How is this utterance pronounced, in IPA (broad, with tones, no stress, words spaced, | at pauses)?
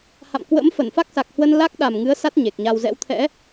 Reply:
ha̰˧˨mkwə̰˧˥m fə˧˩nfa˦˥k̚sa˨˩k̚hwə˧n la˦˥k̚ɗa˨˩m ŋɨ˨˦ə̯ sa˦˥t̚ ɲe˨˩k̚ɲa˧w zɛ̰˧˥w t̪ʰɛ̰˧˥